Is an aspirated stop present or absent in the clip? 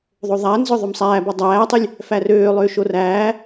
absent